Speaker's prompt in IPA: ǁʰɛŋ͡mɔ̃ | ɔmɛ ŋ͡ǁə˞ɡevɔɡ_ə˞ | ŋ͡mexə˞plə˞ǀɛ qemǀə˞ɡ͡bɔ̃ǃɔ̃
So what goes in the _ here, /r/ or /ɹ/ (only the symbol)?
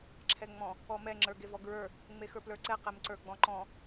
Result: ɹ